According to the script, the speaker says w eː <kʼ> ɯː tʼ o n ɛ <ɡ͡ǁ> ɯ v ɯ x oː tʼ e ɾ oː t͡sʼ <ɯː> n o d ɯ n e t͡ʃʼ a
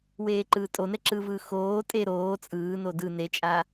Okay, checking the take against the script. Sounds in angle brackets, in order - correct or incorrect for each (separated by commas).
incorrect, incorrect, correct